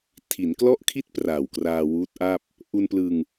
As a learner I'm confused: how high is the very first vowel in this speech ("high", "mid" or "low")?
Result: high